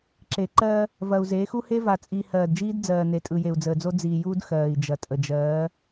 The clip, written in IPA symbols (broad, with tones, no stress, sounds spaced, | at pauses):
ǁ e˨ ǃ ɜ˦ | v ɐ˨ u̯ z e˨˦ x u˦ h e˦ v a˨ t͡sʼ iː˨ h ɜː˨ d d͡ʒ iː˦ d d͡z ɜː˨ n e˨ tʼ ɯ˨ j e˨ u̯ d͡z əː˨ d͡z o˦ d͡z iː˨ j uː˦ d x ɜː˨ i̯ d͡ʒ ɐ˨ tʼ ə˨ d͡ʒ ɜː˨˦